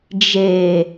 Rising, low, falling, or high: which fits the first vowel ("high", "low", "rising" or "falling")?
low